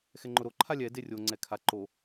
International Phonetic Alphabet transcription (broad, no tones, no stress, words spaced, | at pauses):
xɛŋ͡ǃʊɾo ǃʰalʲɛ derʲo ŋ͡ǀɛkʰa ǃo